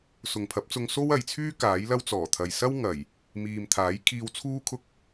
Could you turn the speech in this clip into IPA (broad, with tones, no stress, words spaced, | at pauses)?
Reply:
sʊ˨ŋpʰɐ˨˥p̚t͡sʊ˧ŋ so˥wɐ˨jt͡sʰyː˥ kaː˨˥jlɐ˥w t͡sɔː˨˩t̪ʰɐ˨j sɐ˥wŋɐ˨˩j | miː˨mt̪ʰaː˨˥jkʰiː˧wt͡sʰuː˥ kʰʊ˥k̚